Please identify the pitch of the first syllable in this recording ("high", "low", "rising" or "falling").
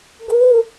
high